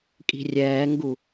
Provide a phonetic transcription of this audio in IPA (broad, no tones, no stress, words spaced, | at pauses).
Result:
kʼi̤rʲɛːŋɡu